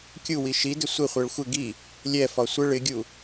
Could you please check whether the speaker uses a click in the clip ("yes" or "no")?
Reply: no